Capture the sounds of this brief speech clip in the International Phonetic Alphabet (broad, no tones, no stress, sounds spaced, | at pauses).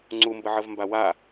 ŋ͡ǀ u m b ə ʕ ə v m b a w a